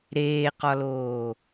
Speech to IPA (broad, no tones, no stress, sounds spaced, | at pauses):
ɾ eː q ɒ l oː